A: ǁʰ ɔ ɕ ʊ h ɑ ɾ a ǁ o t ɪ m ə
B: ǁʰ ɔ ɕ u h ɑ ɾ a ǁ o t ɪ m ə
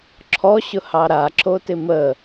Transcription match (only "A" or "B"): A